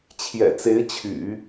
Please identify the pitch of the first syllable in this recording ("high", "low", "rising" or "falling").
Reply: low